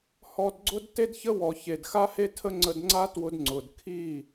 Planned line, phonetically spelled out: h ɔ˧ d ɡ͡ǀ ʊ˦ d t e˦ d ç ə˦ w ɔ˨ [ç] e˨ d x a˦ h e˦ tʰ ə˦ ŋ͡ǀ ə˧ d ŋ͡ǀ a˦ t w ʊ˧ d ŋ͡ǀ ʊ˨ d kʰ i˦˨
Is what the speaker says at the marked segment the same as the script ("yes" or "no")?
yes